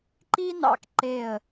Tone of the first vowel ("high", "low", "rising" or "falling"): high